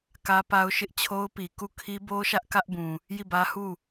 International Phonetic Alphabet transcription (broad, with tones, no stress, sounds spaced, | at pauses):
k ä˦ p a˦ ʊ̯ ʃ ɪ˦ ʔ t͡ɕʰ o˦ ʊ̯ p i˨ k u˦˨ kʰ i˦ b o˦ ʃ ä˦ ʔ k ä˦ ʔ b ũ˨ | j i˦˨ b ä˦ h u˦˨